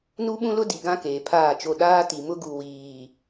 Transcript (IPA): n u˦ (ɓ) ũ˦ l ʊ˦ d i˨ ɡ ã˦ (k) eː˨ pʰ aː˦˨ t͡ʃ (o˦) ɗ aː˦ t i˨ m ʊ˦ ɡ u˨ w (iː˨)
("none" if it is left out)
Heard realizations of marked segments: ɓ, k, o˦˨, iː˨

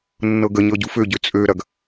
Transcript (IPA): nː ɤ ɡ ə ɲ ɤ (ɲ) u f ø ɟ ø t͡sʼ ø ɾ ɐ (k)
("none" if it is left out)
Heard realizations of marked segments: ɟ, ɡ

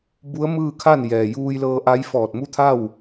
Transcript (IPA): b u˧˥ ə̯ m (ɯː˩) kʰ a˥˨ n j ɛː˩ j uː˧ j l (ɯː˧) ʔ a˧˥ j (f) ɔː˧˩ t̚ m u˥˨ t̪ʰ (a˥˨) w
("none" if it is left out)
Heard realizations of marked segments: ɯː˥˨, ɤː˧, f, a˥˨

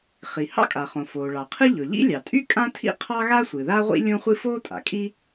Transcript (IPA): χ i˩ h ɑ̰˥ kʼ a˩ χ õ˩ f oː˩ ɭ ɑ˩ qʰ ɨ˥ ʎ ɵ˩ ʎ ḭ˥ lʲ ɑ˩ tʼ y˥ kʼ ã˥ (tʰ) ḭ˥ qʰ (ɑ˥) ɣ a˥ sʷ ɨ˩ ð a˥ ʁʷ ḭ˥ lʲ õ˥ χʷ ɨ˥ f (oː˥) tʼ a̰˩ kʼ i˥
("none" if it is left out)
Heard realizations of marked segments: tʰ, ɑ˥, oː˥

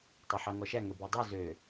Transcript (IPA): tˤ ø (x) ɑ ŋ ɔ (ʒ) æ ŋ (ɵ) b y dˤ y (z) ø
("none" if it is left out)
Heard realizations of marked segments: ħ, ʃ, ɵ, z

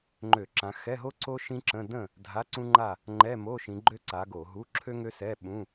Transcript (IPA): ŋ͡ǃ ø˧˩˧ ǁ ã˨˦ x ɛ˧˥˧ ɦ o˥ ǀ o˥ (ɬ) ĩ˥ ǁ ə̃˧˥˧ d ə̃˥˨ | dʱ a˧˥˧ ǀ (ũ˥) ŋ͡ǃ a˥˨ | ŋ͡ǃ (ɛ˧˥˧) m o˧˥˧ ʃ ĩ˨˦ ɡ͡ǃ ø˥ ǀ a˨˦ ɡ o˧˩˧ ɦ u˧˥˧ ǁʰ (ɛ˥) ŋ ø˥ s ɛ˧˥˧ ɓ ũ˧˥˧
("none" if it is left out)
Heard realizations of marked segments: ʃ, ũ˥, ɛ˧˥˧, ø˥

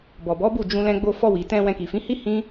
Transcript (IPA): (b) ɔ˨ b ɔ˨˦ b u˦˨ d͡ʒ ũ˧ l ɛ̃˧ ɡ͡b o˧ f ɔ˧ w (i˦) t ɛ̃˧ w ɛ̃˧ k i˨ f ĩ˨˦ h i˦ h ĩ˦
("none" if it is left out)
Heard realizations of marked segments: b, i˨

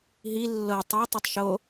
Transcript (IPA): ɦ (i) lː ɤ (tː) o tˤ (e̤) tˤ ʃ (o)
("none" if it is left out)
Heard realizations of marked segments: i, tˤ, e, o

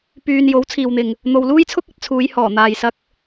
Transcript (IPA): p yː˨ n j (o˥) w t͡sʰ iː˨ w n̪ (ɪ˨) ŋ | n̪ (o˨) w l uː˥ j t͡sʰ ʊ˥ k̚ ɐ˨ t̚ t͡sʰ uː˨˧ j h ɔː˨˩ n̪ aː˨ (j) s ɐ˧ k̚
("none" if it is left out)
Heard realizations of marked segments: o˨˥, ɪ˨, o˨, j

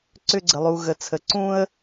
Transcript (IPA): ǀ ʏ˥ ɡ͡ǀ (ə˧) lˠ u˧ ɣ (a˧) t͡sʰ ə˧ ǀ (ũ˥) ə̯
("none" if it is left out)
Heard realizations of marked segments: ə˧, ə˧, ũ˥

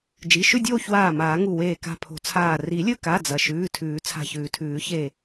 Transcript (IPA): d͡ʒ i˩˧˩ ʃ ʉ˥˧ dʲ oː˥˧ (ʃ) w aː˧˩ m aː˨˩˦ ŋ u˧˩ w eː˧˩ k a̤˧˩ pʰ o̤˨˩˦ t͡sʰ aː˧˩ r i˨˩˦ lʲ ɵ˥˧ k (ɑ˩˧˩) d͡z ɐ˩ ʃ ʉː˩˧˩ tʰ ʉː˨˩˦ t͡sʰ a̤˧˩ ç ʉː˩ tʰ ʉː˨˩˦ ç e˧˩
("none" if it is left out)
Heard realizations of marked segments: ç, a˩˧˩

